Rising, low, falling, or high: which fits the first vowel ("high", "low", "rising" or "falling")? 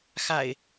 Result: low